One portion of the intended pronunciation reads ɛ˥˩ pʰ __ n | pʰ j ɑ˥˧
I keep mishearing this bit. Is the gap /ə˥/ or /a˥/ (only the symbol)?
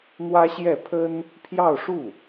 ə˥